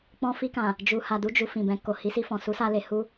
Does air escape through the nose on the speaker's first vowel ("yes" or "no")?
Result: yes